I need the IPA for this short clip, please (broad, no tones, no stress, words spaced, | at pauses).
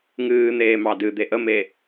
ŋɨːn̪eː mɑdɨ d̪eʔəme